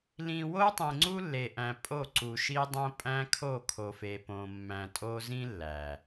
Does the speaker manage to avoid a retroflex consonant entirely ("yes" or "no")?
yes